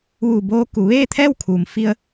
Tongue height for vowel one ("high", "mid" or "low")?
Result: high